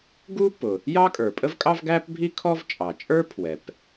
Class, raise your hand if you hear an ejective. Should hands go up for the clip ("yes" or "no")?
yes